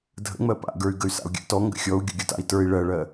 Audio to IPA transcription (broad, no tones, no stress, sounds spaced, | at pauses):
dʱ ə̰ ŋ͡m ɜ p a̰ ɡ ə˞ y̯ ɡ ə y̯ s a̰ u̯ ɡʲ a̰ t ɔ ŋ ɡ ə̰ xʲ ɔ u̯ ɡʲ ʊ ɡʲ ʊ t a̰ i̯ t ə˞ i̯ ɭ ɜ ɭ ɜ